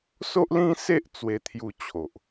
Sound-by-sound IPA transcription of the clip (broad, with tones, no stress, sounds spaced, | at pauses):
s o˦ ʔ l ĩ˦ s e˦ ʔ t͡s w e˧ t̪ʰ j u˧ t͡ɕʰ o˨ ʔ